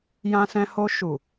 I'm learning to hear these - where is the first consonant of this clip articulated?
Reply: palate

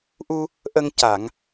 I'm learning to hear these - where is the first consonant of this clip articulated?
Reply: throat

